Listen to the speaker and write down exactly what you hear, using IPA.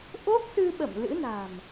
ʔ o˦˥ k̚ s ɨ˧ ɓ ə̰˧˨ m l ɨ̰˧˥ n a̤˨˩ m

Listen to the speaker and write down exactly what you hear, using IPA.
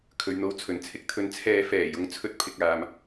kʰ ɵ˨ ɥ n̪ o˧ w t͡sʰ ɵ˨˩ n t͡sʰ ɪ˨˥ k̚ t̪ʰ ɵ˧ n t͡sʰ ɛː˧ f ɛː˨˩ j ʊ˧ ŋ t͡sʰ ɵ˧ t̚ pʰ ɪ˨ k̚ aː˨˧ m

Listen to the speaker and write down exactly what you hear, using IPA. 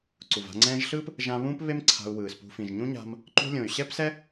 ǀ u˨ v a̤˧ ŋ͡ǀ ɛ̃ː˧ ʒ ɬ ɯː˦ p | ʒ ã˧ β ũː˦ p β e˦ m ǀʰ a̤˧ u̯ w ɯː˨ s p ṳ˧ f ĩ˨ ʒ ɲ ũ˦ ɲ a̤˧ m | ǃ ṳ˧ lʲ õ˨ y̯ ɕ ɛ˦ p s ɛ˦

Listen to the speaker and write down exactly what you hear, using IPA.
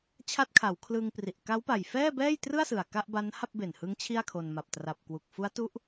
t͡ɕʰ a˦˥ t̚ kʰ a˩˦ w kʰ l ɯː˧ ŋ p r i˨˩ ʔ k a˦˥ w p a˨˩ j f ɛː˥˩ b ɛː˥˩ j t r ɯ˥˩ a̯ s ɯ˨˩ a̯ k a˥˩ ʔ b a˦˥ n h a˥˩ p̚ b e˨˩ n h ɯ˦˥ ŋ t͡ɕʰ i˥˩ a̯ kʰ o˧ n m a˨˩ p̚ t r a˨˩ p̚ k w u˨˩ k̚ f u˦˥ a̯ t u˦˥ ʔ

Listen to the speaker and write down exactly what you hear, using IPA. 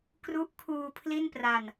k r u˦˥ ʔ kʰ uː˧ pʰ l i˥˩ n p r a˧ n

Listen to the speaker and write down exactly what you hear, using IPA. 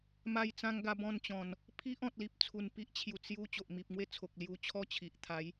m a˧ j t͡s ã˧ ŋ ɡ a˧ b ɔ̃˥˧ n t͡ɕ ɔ̃˨˩ n | pʰ i˦ ʔ ɔ̃˨ t̚ l i˨ p̚ t͡sʰ u˨˩ n p i˦ ʔ t͡ɕʰ j u˨˩ t͡s j u˧ t͡ɕ o˨ ʔ m i˨ p̚ ŋ w e˥˧ t͡sʰ o˨ k̚ l j u˧ t͡ɕʰ ɔ˦ t͡ɕʰ i˨ ʔ t̪ʰ a˨˦ j

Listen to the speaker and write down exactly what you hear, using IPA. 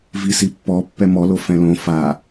v i s i pː ɔ pː ɛ m ɔ l o f ɛ̃ l õ f a

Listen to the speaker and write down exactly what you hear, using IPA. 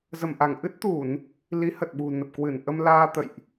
z ə˧˩ m ʔ a˧˩ ŋ ʔ ɨ˦˥ t̚ t̪ u˧˩˨ n | l i˨˦ h ə˨˩ t̚ ɓ ṳ˨˩ n ə˨˩ p̚ k w ɨ˧˩ n ʔ ə˧ m l aː˧ t̪ ə̰˧˨ j ʔ

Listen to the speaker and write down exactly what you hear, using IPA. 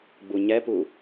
ɡ͡b u ɲ ɛ p u

